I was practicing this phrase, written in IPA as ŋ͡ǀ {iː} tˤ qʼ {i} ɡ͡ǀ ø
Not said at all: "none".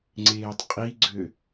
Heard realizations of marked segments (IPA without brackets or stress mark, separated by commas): eː, i